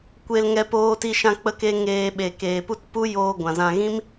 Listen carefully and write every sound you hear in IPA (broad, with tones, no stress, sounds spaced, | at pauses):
kʷ e˧ l ŋ ɛ˧ p oː˧ t i˧ ʃ ã˧ k͡p ə˦ k e˦ ŋ eː˧ ɓ e˨ k eː˨ p u˦ t p u˦ j oː˧ ɡʷ ã˨ z ã˧ ɣ ĩ˦ m